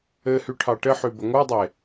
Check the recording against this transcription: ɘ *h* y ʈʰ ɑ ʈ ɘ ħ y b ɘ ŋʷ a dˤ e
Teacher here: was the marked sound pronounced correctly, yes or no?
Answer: yes